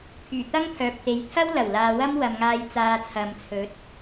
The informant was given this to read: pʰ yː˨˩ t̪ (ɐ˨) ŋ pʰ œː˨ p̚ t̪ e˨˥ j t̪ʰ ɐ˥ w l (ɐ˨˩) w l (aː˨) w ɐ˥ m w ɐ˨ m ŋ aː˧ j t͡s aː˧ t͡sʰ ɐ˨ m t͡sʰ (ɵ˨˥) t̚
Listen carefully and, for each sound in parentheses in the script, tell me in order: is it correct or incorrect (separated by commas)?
incorrect, correct, correct, correct